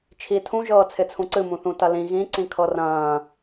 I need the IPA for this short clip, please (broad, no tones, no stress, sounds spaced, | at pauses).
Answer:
t͡ʃʰ i tʰ ũ ʒ ɤː t͡sʰ ɪ t͡sʰ ũ ǀ ɨ m ũ θ ũ t ɐ l ĩ ɣ ĩ ǀ ĩ kʰ ɤ r ɐ̃ː